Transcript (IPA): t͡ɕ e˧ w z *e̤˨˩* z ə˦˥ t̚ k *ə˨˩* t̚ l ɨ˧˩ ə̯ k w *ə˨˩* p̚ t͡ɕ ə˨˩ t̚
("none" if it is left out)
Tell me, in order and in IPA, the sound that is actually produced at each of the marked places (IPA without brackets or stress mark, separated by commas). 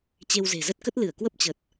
e̤˨˩, ə˦˥, ə˦˥